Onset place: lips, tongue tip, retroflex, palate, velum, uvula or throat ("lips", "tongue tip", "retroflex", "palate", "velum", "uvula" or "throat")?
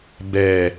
lips